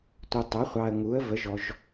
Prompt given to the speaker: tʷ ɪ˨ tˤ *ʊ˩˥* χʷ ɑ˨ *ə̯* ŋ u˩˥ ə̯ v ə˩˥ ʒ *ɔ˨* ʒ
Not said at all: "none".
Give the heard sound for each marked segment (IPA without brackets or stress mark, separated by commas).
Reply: ʊ˩˥, ə̯, ɔ˨